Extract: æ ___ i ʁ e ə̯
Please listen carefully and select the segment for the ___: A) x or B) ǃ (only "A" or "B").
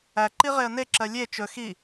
B